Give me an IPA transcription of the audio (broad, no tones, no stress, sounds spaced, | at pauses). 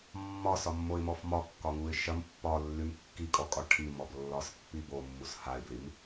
mː ɒ s ɒ mː o ɪ̯ m ɔ f m ɒ kː ɒ ŋ u ɪ̯ ʃ ɐ m pː ɒ lː y m kː i kʼ ɔ kʼ ɒ ʈʰ i m ɔ b lː ɒ s pː i b o mː u s h a ɪ̯ b l i m